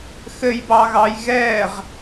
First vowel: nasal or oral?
oral